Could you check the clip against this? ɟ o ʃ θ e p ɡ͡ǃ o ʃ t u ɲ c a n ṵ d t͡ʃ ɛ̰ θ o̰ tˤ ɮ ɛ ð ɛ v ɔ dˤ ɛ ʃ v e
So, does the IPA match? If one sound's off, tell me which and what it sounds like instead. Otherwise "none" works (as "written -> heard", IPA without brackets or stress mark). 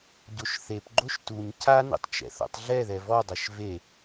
d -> tˤ